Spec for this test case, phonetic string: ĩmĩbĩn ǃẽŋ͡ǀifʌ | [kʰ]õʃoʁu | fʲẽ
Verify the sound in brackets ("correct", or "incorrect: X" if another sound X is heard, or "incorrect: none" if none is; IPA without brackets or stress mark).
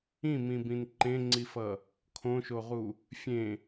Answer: correct